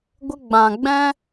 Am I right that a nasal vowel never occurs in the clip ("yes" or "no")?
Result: no